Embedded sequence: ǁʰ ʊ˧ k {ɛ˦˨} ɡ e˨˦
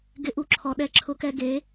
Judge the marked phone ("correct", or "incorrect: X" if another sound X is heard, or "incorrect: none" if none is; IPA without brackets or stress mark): incorrect: ɛ˧